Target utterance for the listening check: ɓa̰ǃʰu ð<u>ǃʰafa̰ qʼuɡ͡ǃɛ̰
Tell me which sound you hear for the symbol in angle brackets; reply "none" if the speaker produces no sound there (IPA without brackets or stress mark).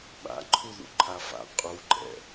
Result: ṵ